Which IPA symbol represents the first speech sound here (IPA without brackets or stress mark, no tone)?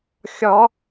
xʲ